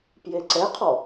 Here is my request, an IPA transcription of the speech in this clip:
p j e ǀ ɛ qʰ ɔ

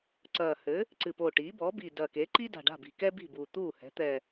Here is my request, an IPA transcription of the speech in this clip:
ǀ ɐː˨˩ h ɘ˩˥ | ǀ ɨ˨˩ p o˨˩ ʈ iː˩˥ b ɔː˩˥ b iː˨˩ d ɐː˨˩ k eː˩˥ ǃ i˥ d a̤˨˩ ɖ a̤˥˩ b i̤˨˩ k ɛ˥ b i̤˥˩ b uː˨˩ t̪ uː˥˩ h ɛ̤˩˥ t̪ ɛ˨˩

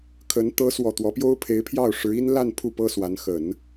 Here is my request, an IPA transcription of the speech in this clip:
kʰ ə˧˥ n t̪ ɤ˧˥ s w ɔ˨˩ t̪ w ɔ˧˥ p j o˥ ʊ̯ pʰ e˧˥ ɪ̯ pʰ j ɑ˥˩ ʊ̯ ʂ ɻ̩˧˥ i˥ n l a˥˧ n pʰ u˥˩ p ɤ˥ s w a˧˥ n x ə˨˩˦ n

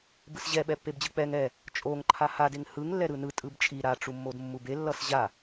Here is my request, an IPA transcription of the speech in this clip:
b ɯ s ʑ ɛ ɓ ɛ pː e b d͡ʑ ɯ k͡p ɛ ŋ ɛ | t͡ʃʼ o ŋ ǃʰ a h a d e ŋ h ɯ ŋ lː ɛ ɾ ɯ n ɯ tʼ ɯ b t͡ʃʼ i ɾ a ʈ͡ʂ u mː o d mː u b e lː ʌ s ʑ a

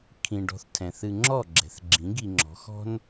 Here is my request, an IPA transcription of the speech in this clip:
kʰ ĩ˨ ɖ ɔ̤˧ θ tʰ ɛ̃˨ θ ɨ˧ ŋ͡ǁ ɔ˦˨ ɡ͡ǁ ɛ̤˨ θ ɡ͡ǁ ĩ˨˦ ɡ i˧ ŋ͡ǁ ɔ̤˨˦ x ɔ̤˦ n

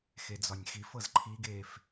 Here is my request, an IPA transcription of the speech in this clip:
x e d͡z ɒ nʲ x i f ɤ z ǃʰ i ɡ eː f

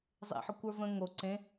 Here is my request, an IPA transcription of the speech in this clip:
zˤ ḛ ħ ə kʷ ə˞ v ə̃ ŋ o ǀ ẽ

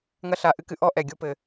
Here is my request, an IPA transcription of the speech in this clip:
ŋ ɐ˦ ɬ a˧ ʔ ɨ˦ k ɨ˧ ʔ ɔ˦ ʔ ɛ˨ ɡʲ o˦ p ɘ˧

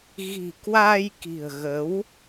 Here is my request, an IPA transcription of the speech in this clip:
ɣ i̤˨˩ k w a˧ j k i̤˨˩ ə̯ ɣ ə˨˦ w

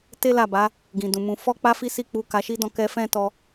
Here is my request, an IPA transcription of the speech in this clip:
t e˦ l a˦˨ b a˨˦ | ɡ ĩ˨ d ũ˨ m ũ˧ f ɔ˦ k͡p a˦ f i˦ s i˦˨ k͡p u˧ k a˧ ʃ i˦ d ɔ̃˦˨ k ɛ˧ f ɛ̃˦ t ɔ˧

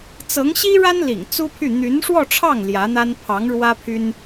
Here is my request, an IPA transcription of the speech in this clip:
t͡s ɤ˧˥ ŋ ɕ i˥ ɻ a˥ n l ḭ˨˩ ŋ t͡s u˥ pʰ y˥˩ n̪ y˧˥ n ʂ w ɔ˥˧ ʈ͡ʂʰ ɑ˥˩ ŋ l j ä˧˥ n̪ a˥ n pʰ ɑ˧˥ ŋ ɻ w ä˥ pʰ y˥ n

